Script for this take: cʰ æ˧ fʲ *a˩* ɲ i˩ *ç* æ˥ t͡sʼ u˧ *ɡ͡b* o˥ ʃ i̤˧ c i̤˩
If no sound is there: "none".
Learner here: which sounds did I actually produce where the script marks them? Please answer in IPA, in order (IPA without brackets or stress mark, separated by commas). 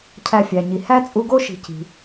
æ˩, h, ɡ